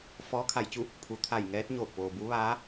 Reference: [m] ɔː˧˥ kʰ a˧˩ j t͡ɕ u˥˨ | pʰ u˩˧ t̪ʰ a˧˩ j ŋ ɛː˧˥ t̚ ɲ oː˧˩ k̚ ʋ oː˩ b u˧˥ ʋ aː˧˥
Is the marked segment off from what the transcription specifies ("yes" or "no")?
yes